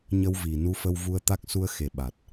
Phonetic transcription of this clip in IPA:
ɲə˧wvi˧˩ nu˧fə˧w vu˧ə̯t̪a˦˥k̚ su˧ə̯xe˨˩ ɓa˨˩t̚

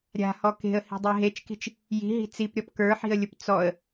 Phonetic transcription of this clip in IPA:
ɾʲa̤hɔ ke̤ə̯hi̤dˤe ɦet͡ʃki̤t͡ʃ | ji̤ɦi̤ t͡sipɾʲɔp kə˞ħi̤ə̯lʲʊp t͡sɔə̯

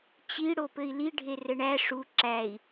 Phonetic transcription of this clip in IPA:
t͡ɕi ɽopɘi̯li ɖʱerɘɳæ ʂu ǁæi̯

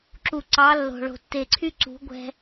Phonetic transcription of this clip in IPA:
ǁu˨ ǀɑ˨˦ lːo̤˨ɭo̤˨ tːe˨ǀʰy˦ǀṳ˨˦ ɡʷɛ̤˧

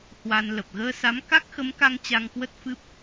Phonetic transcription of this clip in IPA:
hwa˧nlə˨˩p̚ ɣəː˧sa˨˦m ka˦˥k̚xə˨˦mka˧ŋ t͡ɕa˧ŋkwə˦˥t̚fɨ˦˥p̚

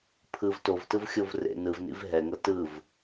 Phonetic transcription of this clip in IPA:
pʰɯv tovtɯvxʲov rḛ nɯvnḭv ɦɛŋɤ tɯv

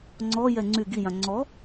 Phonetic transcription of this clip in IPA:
ŋ͡ǀɔjɛ ŋ͡ǀy ɡijã ŋ͡ǀɔ

